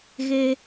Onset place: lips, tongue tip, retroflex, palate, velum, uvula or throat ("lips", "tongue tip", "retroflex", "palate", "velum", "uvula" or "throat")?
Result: velum